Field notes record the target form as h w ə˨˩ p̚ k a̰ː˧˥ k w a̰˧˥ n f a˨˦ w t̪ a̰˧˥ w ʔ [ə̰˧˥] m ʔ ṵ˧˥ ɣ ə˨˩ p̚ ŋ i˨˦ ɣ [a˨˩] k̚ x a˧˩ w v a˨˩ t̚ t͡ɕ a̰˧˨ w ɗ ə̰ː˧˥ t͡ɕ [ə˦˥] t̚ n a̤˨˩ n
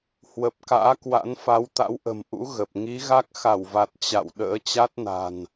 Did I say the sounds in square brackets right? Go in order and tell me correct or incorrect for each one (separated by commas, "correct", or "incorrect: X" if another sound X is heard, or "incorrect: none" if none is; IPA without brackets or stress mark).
incorrect: ə̤˨˩, incorrect: a˦˥, incorrect: a˦˥